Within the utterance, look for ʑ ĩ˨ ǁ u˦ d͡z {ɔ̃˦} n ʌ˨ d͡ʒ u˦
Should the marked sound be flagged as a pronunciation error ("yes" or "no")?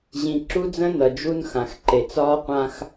yes